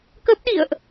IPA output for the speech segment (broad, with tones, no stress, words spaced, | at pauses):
kə˦˥p̚ɗḭ˧˨ə̯ʔ